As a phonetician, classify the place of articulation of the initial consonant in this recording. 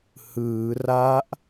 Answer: glottal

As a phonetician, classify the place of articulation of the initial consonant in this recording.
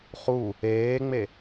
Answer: uvular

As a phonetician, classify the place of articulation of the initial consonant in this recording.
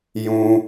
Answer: palatal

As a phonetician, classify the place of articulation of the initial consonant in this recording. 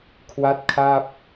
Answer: velar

